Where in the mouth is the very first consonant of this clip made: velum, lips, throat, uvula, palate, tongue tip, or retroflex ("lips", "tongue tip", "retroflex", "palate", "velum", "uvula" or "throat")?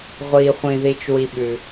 uvula